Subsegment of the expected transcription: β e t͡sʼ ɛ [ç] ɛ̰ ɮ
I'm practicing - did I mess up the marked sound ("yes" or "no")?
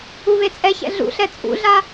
no